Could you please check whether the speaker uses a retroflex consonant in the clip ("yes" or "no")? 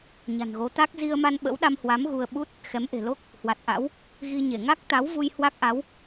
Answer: no